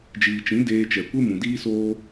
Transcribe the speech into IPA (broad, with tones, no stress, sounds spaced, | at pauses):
d͡ʒ iː˨ t͡ʃ ĩ˨˦ d eː˧ t͡ʃ ɛ˨ kʷ e˦ m ũ˨ d iː˦ s oː˦